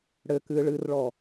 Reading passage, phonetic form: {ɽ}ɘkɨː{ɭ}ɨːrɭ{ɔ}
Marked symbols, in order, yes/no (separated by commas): yes, yes, yes